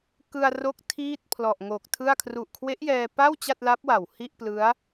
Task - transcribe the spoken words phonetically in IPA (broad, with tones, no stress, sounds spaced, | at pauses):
k ɯ˧ a̯ r o˦˥ k̚ tʰ iː˥˩ t̚ pʰ l ɔ˨˩ ʔ ŋ o˨˩ k̚ tʰ ɯ˥˩ a̯ kʰ r u˨˩ ʔ kʰ w e˦˥ ʔ j ɛː˧ p a˥˩ w t͡ɕ a˥˩ t̚ l a˦˥ p̚ w a˨˩ w h i˥˩ ʔ p l ɯ˦˥ a̯